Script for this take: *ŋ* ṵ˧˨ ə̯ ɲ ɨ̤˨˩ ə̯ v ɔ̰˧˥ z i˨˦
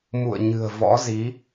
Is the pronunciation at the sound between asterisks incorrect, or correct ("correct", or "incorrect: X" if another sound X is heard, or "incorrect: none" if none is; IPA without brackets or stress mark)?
incorrect: m